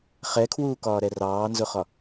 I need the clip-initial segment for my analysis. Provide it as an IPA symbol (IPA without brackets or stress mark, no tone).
χ